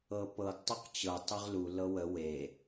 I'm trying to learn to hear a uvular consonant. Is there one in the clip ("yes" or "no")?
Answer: yes